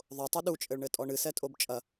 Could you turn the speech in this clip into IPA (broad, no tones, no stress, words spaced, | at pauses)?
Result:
ðˤotˤu ɗut͡ʃʼɘɭɳɘ tʼɔɳɨsɛtʼob t͡ʃʼɐ